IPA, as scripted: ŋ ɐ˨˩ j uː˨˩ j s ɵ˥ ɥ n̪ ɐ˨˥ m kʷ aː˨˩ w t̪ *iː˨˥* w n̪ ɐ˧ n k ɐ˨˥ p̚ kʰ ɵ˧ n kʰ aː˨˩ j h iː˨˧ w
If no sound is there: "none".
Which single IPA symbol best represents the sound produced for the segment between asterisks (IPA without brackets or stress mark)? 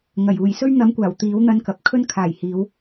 iː˨˥